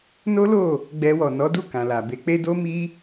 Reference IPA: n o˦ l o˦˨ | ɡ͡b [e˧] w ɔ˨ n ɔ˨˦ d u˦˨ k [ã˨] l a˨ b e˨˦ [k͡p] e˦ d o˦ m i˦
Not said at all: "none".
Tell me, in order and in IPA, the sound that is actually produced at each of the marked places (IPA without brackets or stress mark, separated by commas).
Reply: ɛ˧, ã˨, k͡p